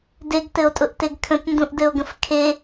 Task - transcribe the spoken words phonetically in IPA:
deɡtɘo̯tʼʊʔteɡ kʰə̃tndũʔdɘo̯ɡə̃f kʰe

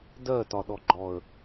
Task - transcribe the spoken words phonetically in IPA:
dɜtɒɗɔɡ͡ǃɔə̯

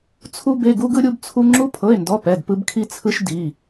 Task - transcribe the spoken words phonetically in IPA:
t͡sʰu˥ be˧˥˧ɡu˥ɡɯ˥ ɾʲu˥bt͡sʰu˥ ŋ͡ǁu˥pʰɤ˧˥˧e̯ndɔ˧˥˧ pɛ˧˥˧dpɯ˥bkʰi˥t͡sʰɯ˥ʃ di˧˥˧

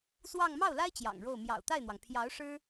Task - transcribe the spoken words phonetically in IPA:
swɑ˥˧ŋ mɑ˥˩ʊ̯la˥ɪ̯ t͡ɕjɑ̰˨˩ŋɻo˥˩ʊ̯ mjɑ̰˨˩ʊ̯t̪a˥˩ɪ̯n̪wɑ˩ŋ pʰjɑ˧˥ʊ̯ ʂɻ̩˥

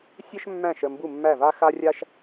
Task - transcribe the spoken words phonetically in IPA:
sʲə˥ʃmːæ̃˥˩ʃ ə˥˩mbu˥˩mːæ˥˩va˥ xa˥rʲa˥ʃ

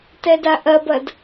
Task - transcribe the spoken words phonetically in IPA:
tɛdaʔɐbɐd

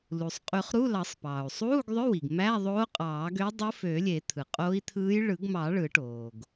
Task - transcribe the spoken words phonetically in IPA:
lu˩sˤ qʼy˨˩˦χ ɾu˧˥˧lɑ˨˩˦sˤpɑː˩u̯ sˤuː˧˥˧ɡðˤø˧˥˧wi˩ɡ mæ˧˥˧ðˤoː˧˥qʼɑː˨˩˦ɡø˧˥ dˤɯ˧˥fø˨˩˦ lʲe˨˩˦ t̪ʰɯ˩qʼo˧˥i̯t̪ʰɯː˧˥j ɭɯ˨˩˦ɡmɑ˨˩˦ ɭɯ˨˩˦ʈoː˩ɡ

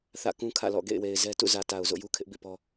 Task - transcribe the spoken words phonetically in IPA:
θä̰˦˨kũ˦kʰä̰˦˨lɔ̰˦˨ ɡḛ˦˨ɪ̯we˨ɪ̯zɛ˦ tṵ˦˨zä˨ta˨ʊ̯ zo̰˦˨ju˦kʰɪ˦ʔ bḭ˦˨pɔ˦

